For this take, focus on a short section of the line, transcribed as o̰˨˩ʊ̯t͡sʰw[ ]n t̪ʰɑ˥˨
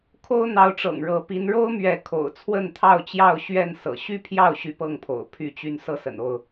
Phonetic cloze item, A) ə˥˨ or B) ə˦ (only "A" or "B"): A